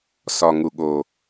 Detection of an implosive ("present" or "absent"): present